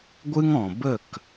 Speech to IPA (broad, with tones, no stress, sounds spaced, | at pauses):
ɡʷ ɨ˦ ŋ ɔ̃˨ b ə˦˨ k